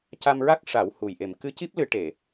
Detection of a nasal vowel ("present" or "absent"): absent